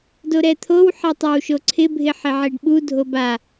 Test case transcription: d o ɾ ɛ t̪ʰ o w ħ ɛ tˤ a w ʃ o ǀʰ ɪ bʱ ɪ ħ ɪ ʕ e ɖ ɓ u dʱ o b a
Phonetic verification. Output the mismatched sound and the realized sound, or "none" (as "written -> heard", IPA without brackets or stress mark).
none